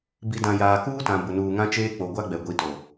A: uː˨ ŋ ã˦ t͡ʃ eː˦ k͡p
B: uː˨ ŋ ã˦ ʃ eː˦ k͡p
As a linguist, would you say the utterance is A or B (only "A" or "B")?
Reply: A